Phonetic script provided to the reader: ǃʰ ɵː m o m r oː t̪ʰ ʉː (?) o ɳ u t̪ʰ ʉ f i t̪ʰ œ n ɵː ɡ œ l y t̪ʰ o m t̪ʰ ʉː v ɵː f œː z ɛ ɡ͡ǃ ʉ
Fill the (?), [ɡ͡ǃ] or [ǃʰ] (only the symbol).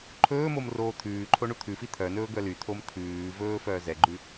ǃʰ